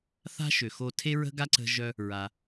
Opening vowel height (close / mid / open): open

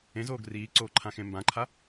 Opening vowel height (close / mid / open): mid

